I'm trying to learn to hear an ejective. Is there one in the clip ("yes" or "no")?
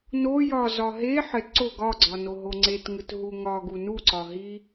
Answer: no